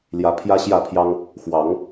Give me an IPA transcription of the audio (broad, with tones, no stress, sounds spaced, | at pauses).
l j ä˨˦ pʰ j ä˦ ɕ j ä˥˨ pʰ j ɑ˦ ŋ | x w ɑ˨˦ ŋ